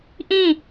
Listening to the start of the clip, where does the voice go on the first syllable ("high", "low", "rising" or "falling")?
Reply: falling